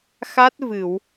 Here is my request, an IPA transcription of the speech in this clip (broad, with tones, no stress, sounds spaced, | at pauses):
x a˦˥ t̚ v ɨ˨˩˨ w